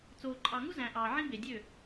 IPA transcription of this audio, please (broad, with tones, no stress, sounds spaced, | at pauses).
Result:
t͡s oː˨ ǃʼ ɑ˨ ŋ u˦ z æ̃˨ ʔ ɑː˨ ʕ ĩ˦ b e˨ dʲ ø˦˨